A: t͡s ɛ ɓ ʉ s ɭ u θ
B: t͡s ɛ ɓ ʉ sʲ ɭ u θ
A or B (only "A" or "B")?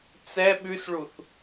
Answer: A